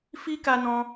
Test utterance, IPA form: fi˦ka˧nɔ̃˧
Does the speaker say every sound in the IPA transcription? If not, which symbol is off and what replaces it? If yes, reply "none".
none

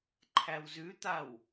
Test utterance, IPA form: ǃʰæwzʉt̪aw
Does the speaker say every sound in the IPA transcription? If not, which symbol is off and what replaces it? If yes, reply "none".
none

